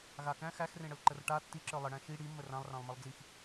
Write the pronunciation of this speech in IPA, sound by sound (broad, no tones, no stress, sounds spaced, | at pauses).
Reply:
ɣ a k æ̃ x æ x r ẽ ɽ ə l ǃ ə r ʈ a tː i ǁ ə˞ lˠ ə ɽ æ̃ ʃ i ɽ i mː ə r ã lˠ r ã lˠ m ə lˠ d͡z i x